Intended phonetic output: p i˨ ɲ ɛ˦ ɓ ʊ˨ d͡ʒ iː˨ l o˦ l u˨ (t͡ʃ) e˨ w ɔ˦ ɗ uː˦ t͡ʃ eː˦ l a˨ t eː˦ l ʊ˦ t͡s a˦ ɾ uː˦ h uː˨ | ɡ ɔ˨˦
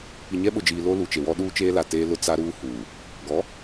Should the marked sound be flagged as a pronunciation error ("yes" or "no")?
no